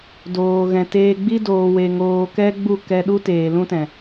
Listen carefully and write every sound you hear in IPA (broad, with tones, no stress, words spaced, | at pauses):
doː˨ɣɛ̃˨teː˧ɡ͡bi˦ doː˧we˧ŋoː˧ kɛ˦ɡ͡bu˦˨kɛ˧ɗu˦ teː˨ lũ˦tɛ̃˨